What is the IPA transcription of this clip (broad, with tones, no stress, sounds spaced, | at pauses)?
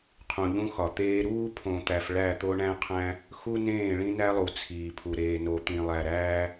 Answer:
qʰ ũ˨ ʎ ũ˦ x ɒ˨ t̪ eː˦ ɾ uː˦ pʰ õ˨ t̪ æ˨ f ɭ æ˦˨ t̪ o˦ ɳ æ̃˦ qʰ æ̃˦ | x u˦ n ẽː˦˨ ɭ ĩ˦ n æ˦ lˠ u˨ t͡sʰ iː˨ pʰ u˨ ɾ eː˨ n o˨ t̪ ĩ˨ lˠ æ˨ ɾ æː˦